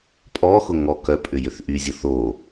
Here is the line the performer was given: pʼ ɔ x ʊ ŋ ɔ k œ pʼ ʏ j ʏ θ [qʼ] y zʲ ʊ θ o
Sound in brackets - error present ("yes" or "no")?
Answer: yes